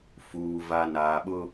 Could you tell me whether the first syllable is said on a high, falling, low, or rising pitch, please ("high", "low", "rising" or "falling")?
low